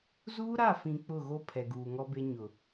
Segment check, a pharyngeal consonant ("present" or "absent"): absent